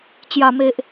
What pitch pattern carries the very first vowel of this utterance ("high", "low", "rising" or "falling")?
low